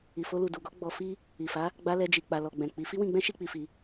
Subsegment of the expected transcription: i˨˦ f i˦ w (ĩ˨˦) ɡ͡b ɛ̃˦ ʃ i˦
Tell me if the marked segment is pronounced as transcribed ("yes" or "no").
no